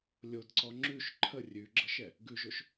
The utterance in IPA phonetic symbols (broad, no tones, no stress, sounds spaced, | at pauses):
lʲ o d ǀ ɔ ŋ͡ǁ ʉ ʃ ǃʰ ə rʲ ʉ ɡ͡ǁ ə ʃ ɛ | ɡ ʉ ʒ o ʃ